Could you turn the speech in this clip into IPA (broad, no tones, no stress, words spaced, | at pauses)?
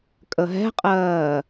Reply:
kʼəɦɛ̤qʼɜː